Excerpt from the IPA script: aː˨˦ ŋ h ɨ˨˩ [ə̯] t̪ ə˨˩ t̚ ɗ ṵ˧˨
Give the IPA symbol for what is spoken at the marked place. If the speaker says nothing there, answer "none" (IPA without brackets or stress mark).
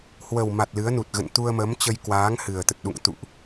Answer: ə̯